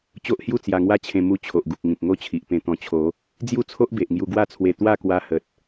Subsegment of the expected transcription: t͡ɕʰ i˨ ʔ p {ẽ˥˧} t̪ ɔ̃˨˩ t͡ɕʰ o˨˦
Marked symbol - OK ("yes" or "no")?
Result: no